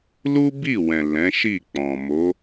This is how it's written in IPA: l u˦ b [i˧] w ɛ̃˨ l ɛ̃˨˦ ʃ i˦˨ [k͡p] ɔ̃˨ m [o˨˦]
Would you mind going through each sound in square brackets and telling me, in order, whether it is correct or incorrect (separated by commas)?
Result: incorrect, correct, correct